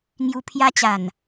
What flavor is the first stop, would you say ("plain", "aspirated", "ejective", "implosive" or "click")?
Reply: aspirated